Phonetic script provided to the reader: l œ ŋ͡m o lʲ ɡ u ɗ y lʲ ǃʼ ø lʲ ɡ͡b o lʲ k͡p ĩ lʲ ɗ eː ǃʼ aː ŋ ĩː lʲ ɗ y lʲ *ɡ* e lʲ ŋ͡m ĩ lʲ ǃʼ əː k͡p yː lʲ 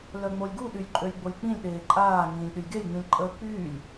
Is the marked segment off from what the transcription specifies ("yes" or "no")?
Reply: no